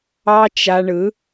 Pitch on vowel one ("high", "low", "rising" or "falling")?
high